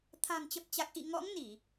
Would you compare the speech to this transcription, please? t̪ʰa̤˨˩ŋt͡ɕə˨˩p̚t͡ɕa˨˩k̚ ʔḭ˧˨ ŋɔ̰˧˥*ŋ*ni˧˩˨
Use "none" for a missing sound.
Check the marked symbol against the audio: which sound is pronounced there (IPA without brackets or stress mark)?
ŋ